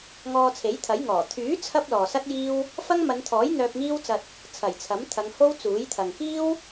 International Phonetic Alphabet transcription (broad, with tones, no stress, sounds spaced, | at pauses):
ŋ ɔː˧ t͡sʰ e˨˥ j t̪ʰ ɐ˨˥ j ŋ ɔː˨˩ t̪ʰ yː˨˥ t͡sʰ ɐ˥ p̚ l ɔː˨ s ɐ˥ t̚ j iː˥ w | f ɐ˥ ŋ m ɐ˨˧ n t̪ʰ ɔː˨˥ j n̪ œː˧ p̚ ŋ iː˥ w t͡s ɐ˧ t̚ | t͡sʰ ɐ˨˩ j t͡sʰ ɐ˨˥ m t̪ʰ ɐ˨˧ ŋ h o˥ w t͡s uː˨˥ j t̪ʰ ɐ˨ ŋ k iː˥ w